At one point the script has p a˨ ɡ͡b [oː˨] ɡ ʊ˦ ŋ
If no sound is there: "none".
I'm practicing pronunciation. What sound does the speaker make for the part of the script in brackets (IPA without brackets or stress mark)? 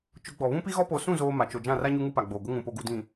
oː˨